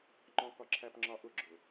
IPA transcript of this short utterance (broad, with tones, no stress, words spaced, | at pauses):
ŋ͡ǃɔ̃˨kɒ˨ǁʰæ˨pŋ͡ǁɒ˨ ʔʊ˦˨ɡ͡ǁʊ˨